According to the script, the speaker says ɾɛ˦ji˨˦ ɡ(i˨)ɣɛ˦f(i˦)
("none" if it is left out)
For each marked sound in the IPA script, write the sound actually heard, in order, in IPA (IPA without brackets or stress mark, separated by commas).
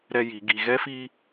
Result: i˨, i˦